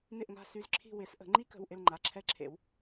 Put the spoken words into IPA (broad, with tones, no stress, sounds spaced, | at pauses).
n ɪ˦˨ ʔ ŋ a̤˦˨ s y˦˨ z ǁʰ i̤˦˨ w ɪ˨˩˦ s ʔ ə̤˨˩˦ ŋ͡ǃ i˦˥ k ə̤˩˧˩ w ʔ ɪ˦˨ l ŋ͡ǃ a˩˧˩ ǁʰ ɛ˦˨ ǁʰ ḛ˨˩˦ w